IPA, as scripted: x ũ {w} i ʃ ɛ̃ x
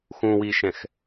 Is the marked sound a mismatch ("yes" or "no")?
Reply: no